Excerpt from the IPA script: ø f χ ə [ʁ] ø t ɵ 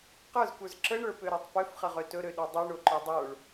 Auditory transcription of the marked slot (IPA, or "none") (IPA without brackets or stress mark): ʁ